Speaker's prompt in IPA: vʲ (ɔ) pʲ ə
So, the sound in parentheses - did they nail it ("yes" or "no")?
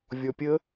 yes